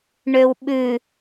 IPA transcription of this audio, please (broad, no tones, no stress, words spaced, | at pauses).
ɳøwɓʉ